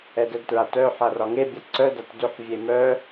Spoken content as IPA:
ɛ d ɛ d t ɹ a t œ ħ a r ɒ ŋ e bʲ a ǀ œ d a t d ʏ ħ vʲ e m œ

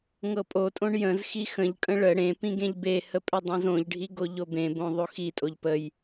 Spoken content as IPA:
ŋ ɤ pʼ o tʼ õ ɳ j ə̃ z x i x ə̃ ʎ kʼ ə̃ ɭ ə ɽ ẽ p ĩ ɡ ẽ ʎ b e h ə pʼ ʏ dˤ õ z õ ʎ ɖʱ i ɡ o ʎ o b ẽ b õ ðˤ o x i tʼ o ʎ p ə j

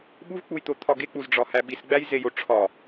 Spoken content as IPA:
ɓ u v k͡p u j t̪ o t̪ʰ ɒ ɡ e k͡p u z ɖ͡ʐ ɒ h æ ɓ i s ɡ͡b æ j z e j o ʈ͡ʂʰ ɒ

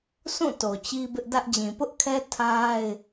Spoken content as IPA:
s ũ˦˨ t o˨ t͡ɕ i˦ b ɪ˦ ʔ d ä˦ ʔ d͡ʑ ĩ˨ p ʊ˦ ʔ kʰ ɛ˦ tʰ a˦ ɪ̯

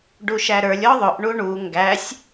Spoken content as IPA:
ɖ u ʃ æ ɾ ə˞ lʲ ɔ ðˤ ʊ ʔ ɳ u ɳ u ŋ ɡ æ sʲ

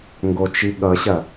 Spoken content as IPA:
ŋ ɡ o t͡ʃ i ɠ ʌ ɕ ɐ

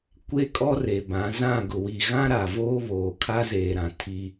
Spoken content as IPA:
kʷ e˦ kʼ ɔ˦ r e˨ b ã˨˦ z ã˦˨ ɡ ʊ˨ w i˨ ɣ ã˦ ɾ a˨ v oː˦ β oː˨ kʰ a˦ z eː˨ ɾ ã˨ tʰ i˦

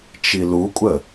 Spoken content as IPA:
t͡ʃ i l u kʷʼ ə

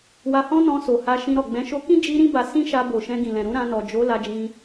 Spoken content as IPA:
w a˧ h ɔ̃˦ n ɔ̃˧ s o˨ h a˧ ʃ ĩ˧ ɾ ɔ˨ ɡ͡b ɛ̃˨˦ ʃ o˧ k ĩ˦ d͡ʒ i˧ ɾ ĩ˦ b a˧ s ĩ˦ ʃ a˧ b o˨ ʃ ɛ̃˧ ɡ ĩ˨ l ɛ̃˨ ɾ ũ˨˦ ɾ ã˧ n ɔ˨ d͡ʒ o˨˦ l a˧ d͡ʒ ĩ˧

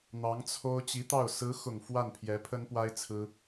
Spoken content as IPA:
n̪ ɑ˧˥ ŋ t͡sʰ o˥ ʊ̯ t͡ɕ i˧˥ t̪ ɑ˥˩ ʊ̯ s ɹ̩˧˥ x ʊ˨˩ ŋ f w a˥˩ n pʰ j ɛ˧˥ pʰ ə˥ n p w a˥ ɪ̯ t͡sʰ ɹ̩˥

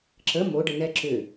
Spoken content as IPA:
ǁ ə m o ɖ ə n ɛ ǁ ʏ

